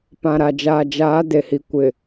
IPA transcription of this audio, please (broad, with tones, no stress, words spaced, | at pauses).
pã˨ɾa˨d͡ʒaː˨ d͡ʒaː˨˦ de˨hi˨ kʷɪ˨